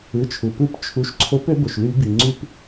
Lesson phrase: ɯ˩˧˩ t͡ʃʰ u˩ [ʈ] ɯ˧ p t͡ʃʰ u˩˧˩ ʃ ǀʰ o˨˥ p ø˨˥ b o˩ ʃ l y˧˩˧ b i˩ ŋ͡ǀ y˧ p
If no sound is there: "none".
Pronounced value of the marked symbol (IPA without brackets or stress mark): p